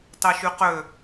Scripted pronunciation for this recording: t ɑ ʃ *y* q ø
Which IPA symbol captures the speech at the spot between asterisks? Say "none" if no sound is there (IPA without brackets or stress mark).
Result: y